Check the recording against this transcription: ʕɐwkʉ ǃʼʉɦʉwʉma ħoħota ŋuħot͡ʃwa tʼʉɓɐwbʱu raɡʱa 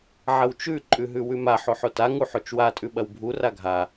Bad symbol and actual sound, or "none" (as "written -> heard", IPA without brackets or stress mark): k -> t͡ʃ